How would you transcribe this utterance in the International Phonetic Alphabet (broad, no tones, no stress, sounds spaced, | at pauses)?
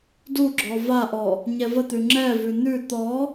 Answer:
d u ɡ͡ǁ ɔ v a ʔ ɔ | ɲ ɛ v ə t̪ ʉ ŋ͡ǁ ɛ v ʉ n̪ ʉ t̪ ɔ